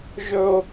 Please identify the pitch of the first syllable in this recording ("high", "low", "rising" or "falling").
high